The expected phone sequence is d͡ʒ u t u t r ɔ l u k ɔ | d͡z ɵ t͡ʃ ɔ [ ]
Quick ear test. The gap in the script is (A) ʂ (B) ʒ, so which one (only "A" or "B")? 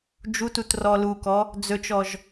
B